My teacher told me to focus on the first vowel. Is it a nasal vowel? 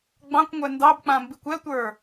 yes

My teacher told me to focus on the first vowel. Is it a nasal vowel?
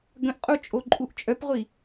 yes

